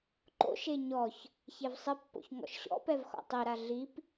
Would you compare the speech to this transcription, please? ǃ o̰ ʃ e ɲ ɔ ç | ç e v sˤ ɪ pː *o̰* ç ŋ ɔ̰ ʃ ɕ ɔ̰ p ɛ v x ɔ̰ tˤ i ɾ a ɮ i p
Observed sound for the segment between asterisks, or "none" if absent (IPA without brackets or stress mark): o̰